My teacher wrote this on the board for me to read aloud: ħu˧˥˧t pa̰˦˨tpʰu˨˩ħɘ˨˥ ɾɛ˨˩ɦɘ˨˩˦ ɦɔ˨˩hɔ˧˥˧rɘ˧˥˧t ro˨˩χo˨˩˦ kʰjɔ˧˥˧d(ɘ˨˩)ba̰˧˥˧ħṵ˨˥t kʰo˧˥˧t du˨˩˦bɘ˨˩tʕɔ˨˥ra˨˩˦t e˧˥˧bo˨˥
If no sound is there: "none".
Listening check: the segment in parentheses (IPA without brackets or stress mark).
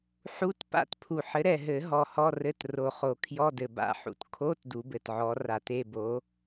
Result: ɘ˨˩